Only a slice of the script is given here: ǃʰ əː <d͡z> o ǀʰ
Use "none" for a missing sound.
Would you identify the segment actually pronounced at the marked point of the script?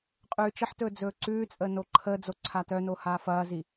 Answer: d͡z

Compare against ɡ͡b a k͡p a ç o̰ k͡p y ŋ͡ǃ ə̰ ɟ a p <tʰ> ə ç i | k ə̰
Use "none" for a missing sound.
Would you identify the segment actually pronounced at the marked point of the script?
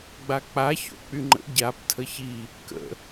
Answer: tʰ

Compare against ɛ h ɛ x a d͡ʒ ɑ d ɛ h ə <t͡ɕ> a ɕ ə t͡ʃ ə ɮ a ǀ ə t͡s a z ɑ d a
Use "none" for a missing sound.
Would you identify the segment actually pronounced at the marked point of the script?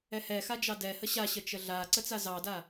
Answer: ɕ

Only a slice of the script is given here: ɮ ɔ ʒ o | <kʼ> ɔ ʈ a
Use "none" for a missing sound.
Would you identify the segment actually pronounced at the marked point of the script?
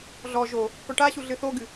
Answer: k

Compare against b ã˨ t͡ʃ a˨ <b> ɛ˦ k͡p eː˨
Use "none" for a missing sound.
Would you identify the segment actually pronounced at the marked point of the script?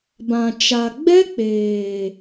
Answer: ɡ͡b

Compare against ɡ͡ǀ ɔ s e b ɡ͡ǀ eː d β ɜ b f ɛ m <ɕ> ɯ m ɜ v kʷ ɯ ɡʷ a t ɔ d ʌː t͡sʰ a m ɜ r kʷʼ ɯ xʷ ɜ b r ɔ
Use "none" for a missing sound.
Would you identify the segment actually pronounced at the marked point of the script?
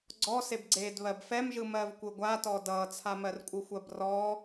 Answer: ʒ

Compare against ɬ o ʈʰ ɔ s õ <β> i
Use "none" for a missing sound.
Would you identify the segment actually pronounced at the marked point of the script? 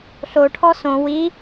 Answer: w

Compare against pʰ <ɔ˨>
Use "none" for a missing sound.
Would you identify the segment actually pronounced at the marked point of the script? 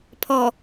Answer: ɔ˨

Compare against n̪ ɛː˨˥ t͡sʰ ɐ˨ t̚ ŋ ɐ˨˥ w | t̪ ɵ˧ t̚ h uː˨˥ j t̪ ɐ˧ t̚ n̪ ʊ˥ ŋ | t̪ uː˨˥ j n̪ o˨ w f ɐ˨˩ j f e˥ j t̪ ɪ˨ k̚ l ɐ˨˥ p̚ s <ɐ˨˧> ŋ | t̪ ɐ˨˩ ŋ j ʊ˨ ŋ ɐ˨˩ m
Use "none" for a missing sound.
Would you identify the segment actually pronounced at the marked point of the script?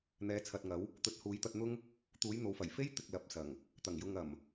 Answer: ɐ˨˩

